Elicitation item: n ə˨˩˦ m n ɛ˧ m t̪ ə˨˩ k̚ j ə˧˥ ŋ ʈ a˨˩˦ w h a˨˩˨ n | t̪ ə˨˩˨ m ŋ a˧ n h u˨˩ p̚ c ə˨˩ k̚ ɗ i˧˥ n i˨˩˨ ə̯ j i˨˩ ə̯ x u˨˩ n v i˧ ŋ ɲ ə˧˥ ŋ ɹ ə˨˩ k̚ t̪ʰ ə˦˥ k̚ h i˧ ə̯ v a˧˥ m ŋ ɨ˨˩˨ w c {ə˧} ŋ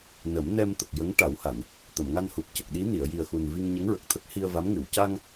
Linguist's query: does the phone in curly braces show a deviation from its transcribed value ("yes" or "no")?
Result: yes